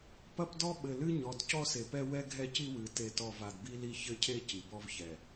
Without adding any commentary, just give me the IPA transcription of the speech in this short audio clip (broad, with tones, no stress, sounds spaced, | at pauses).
p ɐ˦ p d ɔ˦ ɓ ɘ˨ l ɨ˦ ɲ ɔ˨ d c ɔ˦ s e˨ p ɛ˦ w ɛ˦ ɡʱ ɛ˦ c i˦ w ɨ˨˦ t e˦˨ t ɔ˦˨ v a˨ d b i˦ l i˦ ç ɘ˦ cʰ e˦ c i˨ b ɔ˦ v ç ɛ˨